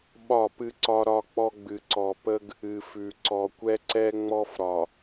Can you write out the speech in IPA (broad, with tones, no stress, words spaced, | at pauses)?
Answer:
ɓɒ˦˨pɨ˦ǀɒ˦ ɾɒ˦k͡pɔ˦ ɡ͡bɨ˨ ǀɔ˨ pə˦ɡ | ɨ˨fʉ˨ ǀɔ˨kʷɛ˦ǀɛ˦ŋ͡mɔ˦f ɾɒ˨